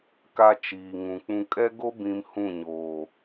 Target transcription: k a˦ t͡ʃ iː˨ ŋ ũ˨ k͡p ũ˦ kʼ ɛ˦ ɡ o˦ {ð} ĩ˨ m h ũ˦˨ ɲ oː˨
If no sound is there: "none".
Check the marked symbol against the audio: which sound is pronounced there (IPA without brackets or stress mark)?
b